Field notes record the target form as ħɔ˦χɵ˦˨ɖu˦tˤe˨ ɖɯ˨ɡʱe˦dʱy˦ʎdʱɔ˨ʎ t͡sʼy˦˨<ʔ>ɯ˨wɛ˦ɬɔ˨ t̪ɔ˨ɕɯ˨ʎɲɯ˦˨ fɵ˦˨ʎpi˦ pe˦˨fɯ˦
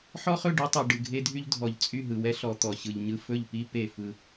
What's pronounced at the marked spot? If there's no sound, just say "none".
ɦ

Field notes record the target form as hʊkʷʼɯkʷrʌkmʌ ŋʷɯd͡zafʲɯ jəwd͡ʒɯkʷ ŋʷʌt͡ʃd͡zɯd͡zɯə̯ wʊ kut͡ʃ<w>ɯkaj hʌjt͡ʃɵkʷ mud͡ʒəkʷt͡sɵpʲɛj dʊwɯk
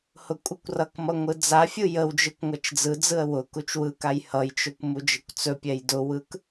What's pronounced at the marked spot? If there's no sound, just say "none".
w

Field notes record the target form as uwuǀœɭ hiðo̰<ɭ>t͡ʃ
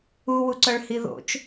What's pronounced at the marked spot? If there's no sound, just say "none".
none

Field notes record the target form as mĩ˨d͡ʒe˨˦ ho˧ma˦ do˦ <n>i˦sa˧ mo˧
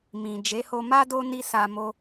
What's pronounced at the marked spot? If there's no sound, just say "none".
n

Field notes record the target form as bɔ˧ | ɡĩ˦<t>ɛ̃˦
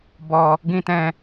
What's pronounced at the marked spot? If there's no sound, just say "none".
t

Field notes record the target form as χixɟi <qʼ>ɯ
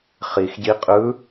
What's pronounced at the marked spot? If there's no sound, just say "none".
qʼ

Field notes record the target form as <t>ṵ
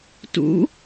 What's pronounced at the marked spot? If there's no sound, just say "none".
t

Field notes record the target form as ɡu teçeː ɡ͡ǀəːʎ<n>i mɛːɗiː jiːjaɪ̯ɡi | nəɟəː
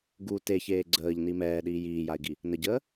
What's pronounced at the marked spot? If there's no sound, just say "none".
n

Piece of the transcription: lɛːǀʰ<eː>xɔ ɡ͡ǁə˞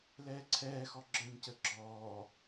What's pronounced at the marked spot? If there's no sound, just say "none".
ɛː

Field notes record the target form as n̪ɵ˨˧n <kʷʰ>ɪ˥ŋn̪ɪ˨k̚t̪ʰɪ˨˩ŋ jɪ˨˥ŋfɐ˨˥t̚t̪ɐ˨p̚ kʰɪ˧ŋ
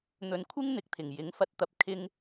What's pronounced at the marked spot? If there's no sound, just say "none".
kʷʰ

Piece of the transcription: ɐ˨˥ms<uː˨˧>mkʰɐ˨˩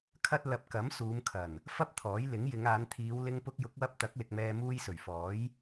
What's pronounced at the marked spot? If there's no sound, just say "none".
uː˨˧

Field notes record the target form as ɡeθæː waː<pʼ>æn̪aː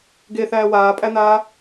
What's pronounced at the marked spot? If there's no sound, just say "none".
pʼ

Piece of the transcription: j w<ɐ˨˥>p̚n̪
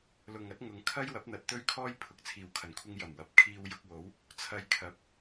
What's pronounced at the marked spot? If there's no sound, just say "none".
ɐ˨˥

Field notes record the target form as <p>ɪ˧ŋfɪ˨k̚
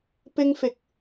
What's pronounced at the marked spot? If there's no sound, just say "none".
p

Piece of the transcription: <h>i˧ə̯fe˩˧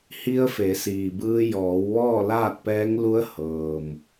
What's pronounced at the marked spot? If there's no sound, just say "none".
h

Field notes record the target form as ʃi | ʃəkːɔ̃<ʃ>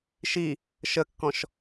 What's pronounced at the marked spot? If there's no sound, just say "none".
ʃ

